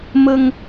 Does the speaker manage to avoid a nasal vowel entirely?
yes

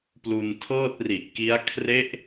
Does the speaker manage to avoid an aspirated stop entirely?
no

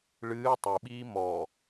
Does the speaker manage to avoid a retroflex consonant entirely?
no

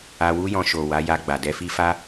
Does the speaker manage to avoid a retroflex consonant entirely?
yes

